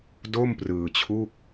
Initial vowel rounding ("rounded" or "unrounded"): rounded